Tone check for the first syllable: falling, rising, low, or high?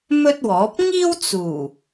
high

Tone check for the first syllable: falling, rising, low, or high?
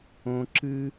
high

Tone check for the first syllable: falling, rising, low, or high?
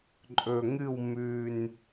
low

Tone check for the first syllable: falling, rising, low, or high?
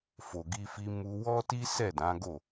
low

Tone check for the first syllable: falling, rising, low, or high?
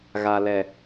low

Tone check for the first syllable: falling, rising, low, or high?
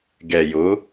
low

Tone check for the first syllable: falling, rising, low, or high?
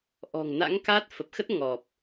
low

